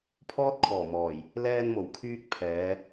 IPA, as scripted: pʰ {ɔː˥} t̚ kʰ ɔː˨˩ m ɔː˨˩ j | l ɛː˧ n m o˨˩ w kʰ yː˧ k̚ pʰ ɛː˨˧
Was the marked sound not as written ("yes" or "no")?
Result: no